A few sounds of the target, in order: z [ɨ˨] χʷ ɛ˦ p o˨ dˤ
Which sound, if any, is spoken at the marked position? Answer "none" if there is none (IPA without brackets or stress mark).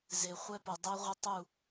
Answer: e˨